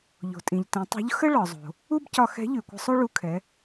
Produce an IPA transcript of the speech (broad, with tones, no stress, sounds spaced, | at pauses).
ʎ o̤˩ tʼ ĩ˩ ʎ t ĩ˩˧ tˤ o̤˧˥ ʎ x ə˥ ɭ ɒ˩ zˤ o̤˩ | u˥ b c ɒ˧ x ɛ̤˧˥ ʎ ʉ˩ kʷ ə̤˧ sˤ o˥ ɭ u˧ kʰ ɛ˩˧